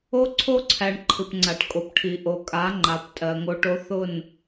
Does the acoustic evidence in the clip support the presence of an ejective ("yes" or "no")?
yes